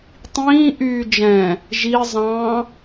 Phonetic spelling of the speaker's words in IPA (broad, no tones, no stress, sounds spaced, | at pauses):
tˤ ĩː ʔ yː d͡ʒ ɛ̃ | ʒ i zˤ ɑ̃